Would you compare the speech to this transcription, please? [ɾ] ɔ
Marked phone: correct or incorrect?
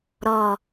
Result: correct